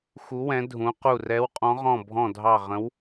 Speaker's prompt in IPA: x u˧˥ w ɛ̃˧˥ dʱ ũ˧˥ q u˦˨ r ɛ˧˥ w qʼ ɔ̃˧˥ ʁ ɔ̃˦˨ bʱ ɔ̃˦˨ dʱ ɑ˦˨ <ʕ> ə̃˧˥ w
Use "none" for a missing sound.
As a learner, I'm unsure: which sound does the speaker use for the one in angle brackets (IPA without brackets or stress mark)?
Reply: ʁ